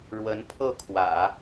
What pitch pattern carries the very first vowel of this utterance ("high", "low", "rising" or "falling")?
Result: rising